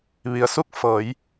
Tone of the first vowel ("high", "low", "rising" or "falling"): low